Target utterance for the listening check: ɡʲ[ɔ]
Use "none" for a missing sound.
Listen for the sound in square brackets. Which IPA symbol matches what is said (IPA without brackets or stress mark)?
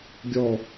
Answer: ɔ